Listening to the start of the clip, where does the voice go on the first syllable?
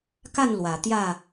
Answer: falling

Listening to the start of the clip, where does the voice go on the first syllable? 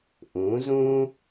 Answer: rising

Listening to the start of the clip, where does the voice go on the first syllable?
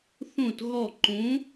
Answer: falling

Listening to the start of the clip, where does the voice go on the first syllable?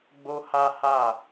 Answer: high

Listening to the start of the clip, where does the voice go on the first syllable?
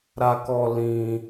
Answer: high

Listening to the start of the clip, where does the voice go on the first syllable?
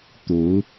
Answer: rising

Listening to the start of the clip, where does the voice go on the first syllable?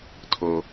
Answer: high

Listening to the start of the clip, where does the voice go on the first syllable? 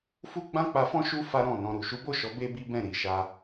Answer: high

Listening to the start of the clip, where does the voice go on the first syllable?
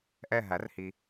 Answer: falling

